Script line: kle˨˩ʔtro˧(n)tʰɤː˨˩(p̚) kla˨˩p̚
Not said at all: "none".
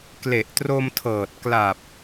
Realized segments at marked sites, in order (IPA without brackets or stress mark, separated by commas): m, t̚